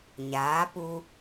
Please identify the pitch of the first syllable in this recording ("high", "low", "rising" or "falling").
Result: rising